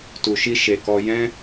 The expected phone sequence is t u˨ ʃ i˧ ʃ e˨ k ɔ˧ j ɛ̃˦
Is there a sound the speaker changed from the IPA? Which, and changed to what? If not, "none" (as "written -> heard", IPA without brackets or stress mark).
none